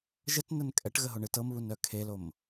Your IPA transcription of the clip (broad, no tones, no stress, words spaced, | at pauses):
ʒətnən kʼɛʈɣəɦoɳɨ tɤmβunœ kʰelom